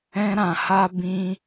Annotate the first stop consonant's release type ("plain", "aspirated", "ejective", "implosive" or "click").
plain